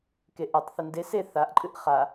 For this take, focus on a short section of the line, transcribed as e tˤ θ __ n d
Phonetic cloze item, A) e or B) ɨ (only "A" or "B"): B